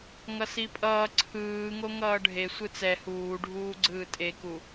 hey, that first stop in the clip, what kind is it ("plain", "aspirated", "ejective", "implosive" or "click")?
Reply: ejective